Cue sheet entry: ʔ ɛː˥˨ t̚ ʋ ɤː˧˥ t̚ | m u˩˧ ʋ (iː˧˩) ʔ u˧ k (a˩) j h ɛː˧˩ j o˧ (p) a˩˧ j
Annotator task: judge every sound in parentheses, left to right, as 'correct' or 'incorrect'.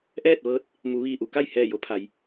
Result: correct, incorrect, incorrect

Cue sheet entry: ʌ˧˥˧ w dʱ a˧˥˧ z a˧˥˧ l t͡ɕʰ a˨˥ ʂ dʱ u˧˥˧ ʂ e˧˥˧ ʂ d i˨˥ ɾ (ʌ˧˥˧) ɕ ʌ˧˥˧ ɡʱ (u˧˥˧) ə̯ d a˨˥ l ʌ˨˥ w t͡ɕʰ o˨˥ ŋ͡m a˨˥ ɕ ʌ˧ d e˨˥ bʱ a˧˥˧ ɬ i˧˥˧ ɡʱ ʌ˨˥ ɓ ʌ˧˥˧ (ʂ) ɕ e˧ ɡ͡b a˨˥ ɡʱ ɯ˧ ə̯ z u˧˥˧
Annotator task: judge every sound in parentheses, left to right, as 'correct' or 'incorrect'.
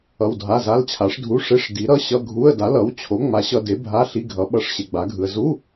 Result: correct, correct, correct

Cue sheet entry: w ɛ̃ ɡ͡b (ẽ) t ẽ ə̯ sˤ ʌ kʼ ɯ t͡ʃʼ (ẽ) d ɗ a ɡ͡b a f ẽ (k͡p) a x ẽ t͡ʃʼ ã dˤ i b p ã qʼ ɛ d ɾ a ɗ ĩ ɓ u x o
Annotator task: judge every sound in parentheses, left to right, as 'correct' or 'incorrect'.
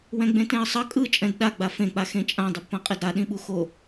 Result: correct, incorrect, correct

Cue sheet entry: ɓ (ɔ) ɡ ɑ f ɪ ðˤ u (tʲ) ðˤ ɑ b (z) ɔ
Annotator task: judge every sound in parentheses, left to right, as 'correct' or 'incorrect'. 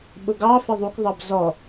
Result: incorrect, incorrect, correct

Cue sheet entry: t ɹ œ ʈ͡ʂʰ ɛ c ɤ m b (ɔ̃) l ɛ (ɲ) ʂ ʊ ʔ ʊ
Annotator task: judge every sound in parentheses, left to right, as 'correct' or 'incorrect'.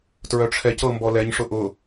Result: incorrect, correct

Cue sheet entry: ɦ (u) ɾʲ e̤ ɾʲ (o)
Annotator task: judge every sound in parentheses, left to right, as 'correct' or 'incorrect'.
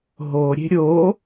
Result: incorrect, correct

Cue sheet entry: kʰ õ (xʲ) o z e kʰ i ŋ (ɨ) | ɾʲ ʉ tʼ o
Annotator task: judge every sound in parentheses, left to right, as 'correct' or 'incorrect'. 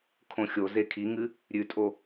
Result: correct, correct

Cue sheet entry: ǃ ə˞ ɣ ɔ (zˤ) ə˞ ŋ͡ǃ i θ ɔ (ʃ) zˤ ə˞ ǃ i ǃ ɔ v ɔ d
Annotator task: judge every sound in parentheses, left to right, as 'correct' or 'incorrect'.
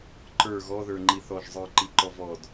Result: incorrect, incorrect

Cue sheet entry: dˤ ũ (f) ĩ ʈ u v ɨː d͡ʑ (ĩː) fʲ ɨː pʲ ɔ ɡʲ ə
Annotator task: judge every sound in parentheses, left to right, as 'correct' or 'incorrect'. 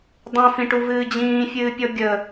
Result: correct, correct

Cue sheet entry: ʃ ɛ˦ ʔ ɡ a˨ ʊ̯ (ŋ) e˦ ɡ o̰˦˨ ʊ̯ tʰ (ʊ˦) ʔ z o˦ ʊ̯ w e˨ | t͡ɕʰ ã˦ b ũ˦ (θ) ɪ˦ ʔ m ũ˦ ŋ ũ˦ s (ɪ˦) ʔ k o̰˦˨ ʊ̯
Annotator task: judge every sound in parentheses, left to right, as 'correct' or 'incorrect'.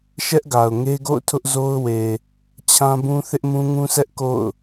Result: correct, correct, correct, incorrect

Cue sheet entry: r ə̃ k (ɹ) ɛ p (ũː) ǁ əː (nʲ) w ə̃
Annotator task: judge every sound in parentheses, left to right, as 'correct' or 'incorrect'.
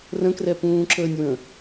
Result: incorrect, correct, correct

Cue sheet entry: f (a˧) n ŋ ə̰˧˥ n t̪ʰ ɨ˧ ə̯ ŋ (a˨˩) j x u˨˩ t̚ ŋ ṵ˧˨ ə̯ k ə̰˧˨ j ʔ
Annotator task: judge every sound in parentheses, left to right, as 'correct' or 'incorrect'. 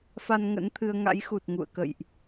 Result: correct, incorrect

